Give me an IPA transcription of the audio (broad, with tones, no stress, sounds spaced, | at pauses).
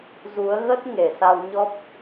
z u˨˦ ə̯ ɣ ə˦˥ t̚ ŋ e˨˩ s a˧ w ɲ ɔ˦˥ p̚